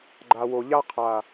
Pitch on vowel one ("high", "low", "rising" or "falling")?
low